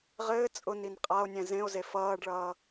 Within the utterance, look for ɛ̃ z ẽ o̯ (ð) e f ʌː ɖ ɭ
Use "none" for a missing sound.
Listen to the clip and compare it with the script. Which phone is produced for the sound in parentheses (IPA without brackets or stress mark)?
z